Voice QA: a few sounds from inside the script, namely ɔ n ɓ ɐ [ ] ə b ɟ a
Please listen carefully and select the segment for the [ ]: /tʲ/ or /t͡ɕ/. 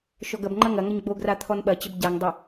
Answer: t͡ɕ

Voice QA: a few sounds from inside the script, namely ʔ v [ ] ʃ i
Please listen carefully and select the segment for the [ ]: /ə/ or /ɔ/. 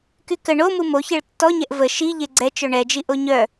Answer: ə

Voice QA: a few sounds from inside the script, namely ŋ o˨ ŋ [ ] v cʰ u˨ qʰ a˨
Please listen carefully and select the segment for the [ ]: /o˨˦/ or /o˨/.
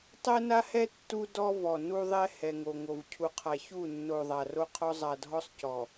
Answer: o˨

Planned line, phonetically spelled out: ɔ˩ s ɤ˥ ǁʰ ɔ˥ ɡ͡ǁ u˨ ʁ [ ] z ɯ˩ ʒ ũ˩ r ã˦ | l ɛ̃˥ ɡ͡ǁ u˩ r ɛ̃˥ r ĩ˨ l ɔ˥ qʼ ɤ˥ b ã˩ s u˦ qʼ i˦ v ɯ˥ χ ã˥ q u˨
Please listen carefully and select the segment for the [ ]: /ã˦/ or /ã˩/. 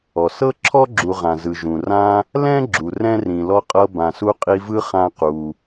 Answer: ã˩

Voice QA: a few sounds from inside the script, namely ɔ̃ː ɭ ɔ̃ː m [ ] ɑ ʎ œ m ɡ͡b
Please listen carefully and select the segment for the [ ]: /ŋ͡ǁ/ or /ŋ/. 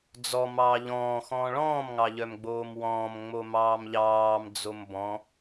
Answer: ŋ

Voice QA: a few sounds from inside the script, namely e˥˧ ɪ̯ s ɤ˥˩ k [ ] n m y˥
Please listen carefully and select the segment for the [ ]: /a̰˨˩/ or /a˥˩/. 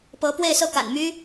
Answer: a̰˨˩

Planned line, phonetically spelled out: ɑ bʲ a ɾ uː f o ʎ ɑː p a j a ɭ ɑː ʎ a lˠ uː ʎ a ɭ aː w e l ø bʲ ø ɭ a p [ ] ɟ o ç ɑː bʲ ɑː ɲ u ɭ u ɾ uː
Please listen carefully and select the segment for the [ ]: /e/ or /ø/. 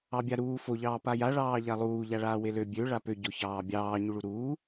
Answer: ø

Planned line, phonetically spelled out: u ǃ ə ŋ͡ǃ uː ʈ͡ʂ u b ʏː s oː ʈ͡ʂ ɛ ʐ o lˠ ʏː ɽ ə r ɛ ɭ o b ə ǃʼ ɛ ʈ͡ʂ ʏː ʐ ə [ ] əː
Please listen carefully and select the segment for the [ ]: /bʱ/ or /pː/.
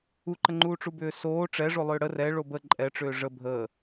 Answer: bʱ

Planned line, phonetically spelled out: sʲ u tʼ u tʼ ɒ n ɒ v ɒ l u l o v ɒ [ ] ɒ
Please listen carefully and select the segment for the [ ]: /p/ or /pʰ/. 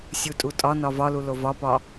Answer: p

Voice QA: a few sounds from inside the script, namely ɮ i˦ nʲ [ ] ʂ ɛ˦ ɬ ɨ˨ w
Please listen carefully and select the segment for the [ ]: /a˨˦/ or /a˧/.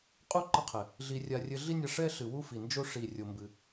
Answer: a˧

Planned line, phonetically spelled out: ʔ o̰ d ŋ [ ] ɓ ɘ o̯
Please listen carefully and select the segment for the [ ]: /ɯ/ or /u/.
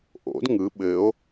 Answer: ɯ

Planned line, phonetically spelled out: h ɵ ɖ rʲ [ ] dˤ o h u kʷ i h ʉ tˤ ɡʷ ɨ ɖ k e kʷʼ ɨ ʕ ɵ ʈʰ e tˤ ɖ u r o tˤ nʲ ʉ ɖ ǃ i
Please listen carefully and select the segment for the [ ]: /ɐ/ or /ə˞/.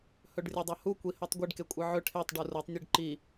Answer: ɐ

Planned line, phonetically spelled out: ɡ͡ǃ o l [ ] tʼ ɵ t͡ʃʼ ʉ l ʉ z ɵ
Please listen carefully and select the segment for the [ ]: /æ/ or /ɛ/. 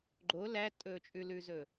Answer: æ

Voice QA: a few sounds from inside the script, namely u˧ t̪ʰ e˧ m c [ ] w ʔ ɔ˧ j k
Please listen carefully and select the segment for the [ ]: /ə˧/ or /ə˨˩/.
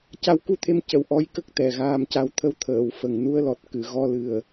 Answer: ə˨˩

